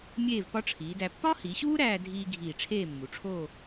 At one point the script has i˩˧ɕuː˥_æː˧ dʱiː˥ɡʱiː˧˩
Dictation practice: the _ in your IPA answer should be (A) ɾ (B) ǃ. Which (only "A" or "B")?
A